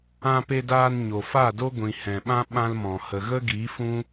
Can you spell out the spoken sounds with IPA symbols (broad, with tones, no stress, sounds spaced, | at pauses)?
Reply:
ã˧ p e˧ d aː˧ n ɲ o˨ f a˦˨ d o˦ ɡʷ ĩ˨ h ɛ̃˨ ɓ ã˦ ɓ ã˦ l m ɔ̃˨ h ə˨ ɣ ə˦ ɡ i˨˦ f ũ˦